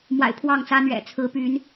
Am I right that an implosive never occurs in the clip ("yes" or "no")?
yes